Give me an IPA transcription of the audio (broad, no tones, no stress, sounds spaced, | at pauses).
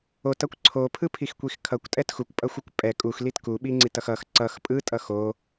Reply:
o t ʌ kʷ ǀʰ o pʰ ɯ pʰ i x kʷ i x kʰ ʌ kʷ tʼ ɛ t x u kʷ pʼ ʌ xʷ ɯ kʷ pʼ ɛ kʼ u x l i t k u ɓ i ŋ͡ǀ i t ʌ x ʌ x ǀ ʌ x pʼ ɯ tʼ ʌ x o